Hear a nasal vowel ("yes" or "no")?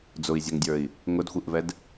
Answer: no